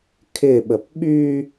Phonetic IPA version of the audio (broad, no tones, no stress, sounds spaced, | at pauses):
kʰ ɪ ɓ ə p ɓ y